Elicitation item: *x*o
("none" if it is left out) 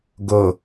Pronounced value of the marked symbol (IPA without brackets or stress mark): ɡ